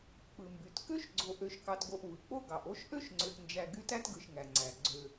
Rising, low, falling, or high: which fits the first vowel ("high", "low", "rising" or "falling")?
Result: low